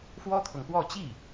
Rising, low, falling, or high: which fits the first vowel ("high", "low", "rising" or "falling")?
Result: high